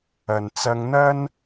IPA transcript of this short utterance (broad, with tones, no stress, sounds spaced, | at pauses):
ɐ˨ n t͡s ɐ˧ ŋ n̪ ɐ˥ n